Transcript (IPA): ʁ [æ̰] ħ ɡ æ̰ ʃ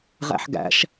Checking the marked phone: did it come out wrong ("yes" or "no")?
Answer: no